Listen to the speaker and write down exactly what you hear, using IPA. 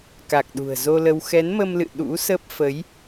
ka˨˩k̚ɗṳ˨˩ə̯zo˧lə˧w xɛ˨˦nmə˧mlɨ̰˧˨ ɗṵ˧˥sə˦˥p̚ fə˨˦j

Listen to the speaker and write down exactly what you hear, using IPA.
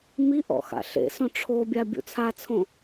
miʔɔ̰ xa̰ɬḛsõ ʈ͡ʂʰobʲa bʲṵt͡sʰat͡sʰõ

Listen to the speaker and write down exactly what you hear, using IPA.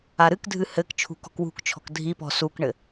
aɾɨkdʱɨ hɘk t͡ʃʰṳkɔ̤kwṳkt͡ʃʰɔ̤k dʱipɔ̤ sukɳɘ

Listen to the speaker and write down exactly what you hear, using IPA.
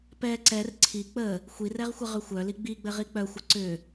pɛ ǀɛr ǀʰi k͡pə | xʷirɛʁxʷəʁʏ xʷœli ɡ͡biɡ͡bɘʁi k͡pœxʷɘ ǀʏ

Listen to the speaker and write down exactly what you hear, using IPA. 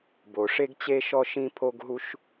bo˩ʂe˥ɡt͡ɕe˥ʃɔ˥ ʃĩ˥ pʰo˥ɡɦu˥ʃ

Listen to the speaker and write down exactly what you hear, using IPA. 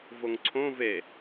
voŋǀʰõ ve

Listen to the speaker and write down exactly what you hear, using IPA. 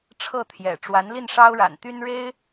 ʈ͡ʂʰɤ˥˩t̪ʰjɛ̰˨˩ ʈ͡ʂwa˧˥nli˥˩nʂɑ˥ʊ̯ɻa̰˨˩n t̪y˥nɻe˥ɪ̯

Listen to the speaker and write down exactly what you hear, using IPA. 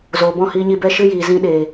zoː˨bɔ̃˦˨hiː˧ɲi˧ bɛ˦ʃɨ˦jiː˨ zĩ˧ ɗeː˨

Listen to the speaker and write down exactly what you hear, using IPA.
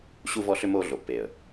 ɕu˦vɔ˦ɬʏ˦ moː˦ɮo˨pːeː˨ə̯

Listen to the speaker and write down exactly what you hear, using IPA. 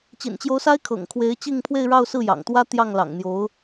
t͡ɕḭ˨˩nt͡ɕjo˧˥ʊ̯sa˥ɪ̯ kʰɤ̰˨˩ŋkʰwe˧˥ɪ̯ t͡ɕi˥˧ŋpʰwe˥˧ɪ̯ɻɑ˥˧ʊ̯ sɹ̩˥˩jɑ̰˨˩ŋt̪wä˥ t̪jɑ˥˩ŋlɑ̰˨˩ŋn̪jo˧˥ʊ̯

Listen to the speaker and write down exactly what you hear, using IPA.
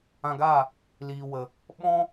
ã˧ɡaː˦˨ | liː˨wə˨ | ɓɔ̃˦

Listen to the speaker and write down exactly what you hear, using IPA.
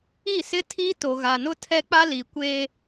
i˦˨sɪ˦ tʰi˦ to˨ɣa˨nʊ˦ tʰɛ˦k͡pa˦li˨ kʷeː˦

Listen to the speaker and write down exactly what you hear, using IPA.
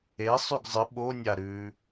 esˤʉɡ zˤɨ ɓonʲa ɾʉ

